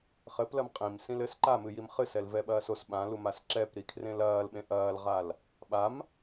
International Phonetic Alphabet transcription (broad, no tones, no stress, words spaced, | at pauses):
χɘplɐm qʼĩmsĩlɘs ǃamɨjim χɨsɛlvɛɓɐːs os ɓãlumas ǁɛpɾikʰrẽl ɐːlɓẽ ʔɐːlʁal | ɓam